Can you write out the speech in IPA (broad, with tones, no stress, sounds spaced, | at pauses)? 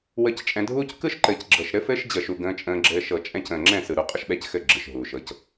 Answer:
w ə˧ c t͡ʃʼ ɛ̃˧ dʱ uː˦ c k ɯ˦ ʃ ǃ ɘː˨ c ɡ͡ǁ ɤ˨ ʃ ɾ ɘ˦ f ɘː˦ ʃ d͡ʑ ə˨ ʃ u˨ ɡ ə̃ː˧ t͡ʃʼ ə̃ː˧ ɡ͡ǁ ɘː˧ ʃ ɤ˨ t͡ʃʼ ɛ̃˧ c ə̃ː˨ ŋ͡ǁ ɛ̃˦˨ s ɯ˨ ɾ u˧ qʼ ə˦ ʃ ɓ ɛ˦˨ c x ɘ˦˨ ɡ͡ǁ ɯ˨ ʃ ɦ uː˨ ʃ ɤ˧ c